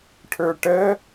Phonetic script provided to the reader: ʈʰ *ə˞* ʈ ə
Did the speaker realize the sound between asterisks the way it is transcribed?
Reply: yes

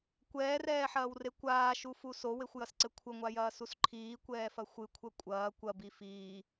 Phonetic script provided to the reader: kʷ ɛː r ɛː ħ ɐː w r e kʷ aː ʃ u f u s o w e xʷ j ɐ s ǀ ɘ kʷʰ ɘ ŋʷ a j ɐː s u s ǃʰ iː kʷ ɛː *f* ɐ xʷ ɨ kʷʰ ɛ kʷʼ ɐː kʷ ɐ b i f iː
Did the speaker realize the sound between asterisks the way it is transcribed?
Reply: yes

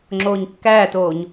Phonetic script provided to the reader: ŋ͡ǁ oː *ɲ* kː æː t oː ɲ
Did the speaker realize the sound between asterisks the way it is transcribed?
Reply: yes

